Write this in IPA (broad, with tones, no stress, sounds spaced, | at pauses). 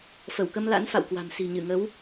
f ə˧˩ w k ə˧ m l a̰˧˥ n f a̰˧˨ w k w a̤˨˩ m s i̤˨˩ ɲ ɨ˧˩ ŋ ə˨˦ w